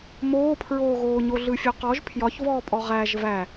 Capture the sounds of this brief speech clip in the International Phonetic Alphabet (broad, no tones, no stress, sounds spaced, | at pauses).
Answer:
m oː pʰ ɹ oː ɣ oː ɲ o ɮ ɯ fʲ ɵ q ɔ ʒ pʰ j ɒ ç v ɔː pʼ ɔ ʁ æ ʒ v æ